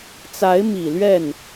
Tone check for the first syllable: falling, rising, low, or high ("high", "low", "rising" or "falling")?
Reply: rising